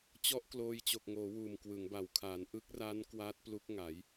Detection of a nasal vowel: absent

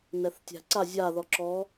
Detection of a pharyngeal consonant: absent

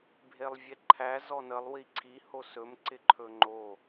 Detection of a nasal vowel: absent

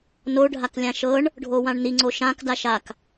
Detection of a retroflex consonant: present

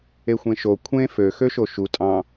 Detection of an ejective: present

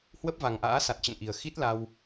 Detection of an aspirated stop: absent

